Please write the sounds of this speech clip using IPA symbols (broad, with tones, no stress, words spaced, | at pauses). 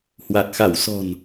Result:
hwa˨˩t̚xa˧˩wsɔ̤˨˩n